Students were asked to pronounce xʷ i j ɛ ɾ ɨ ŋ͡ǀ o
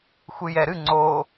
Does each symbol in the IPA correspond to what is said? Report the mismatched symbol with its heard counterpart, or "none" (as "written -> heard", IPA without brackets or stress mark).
i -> ɨ